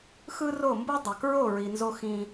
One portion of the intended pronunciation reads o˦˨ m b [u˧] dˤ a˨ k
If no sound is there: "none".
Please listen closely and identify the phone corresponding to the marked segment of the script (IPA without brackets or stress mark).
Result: u˦